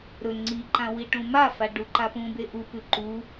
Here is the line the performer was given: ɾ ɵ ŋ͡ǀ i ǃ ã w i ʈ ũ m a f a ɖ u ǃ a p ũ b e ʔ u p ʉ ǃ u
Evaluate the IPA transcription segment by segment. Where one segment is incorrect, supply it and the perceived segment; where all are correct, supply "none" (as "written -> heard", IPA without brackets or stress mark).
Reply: none